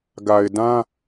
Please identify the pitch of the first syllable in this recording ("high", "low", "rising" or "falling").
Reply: low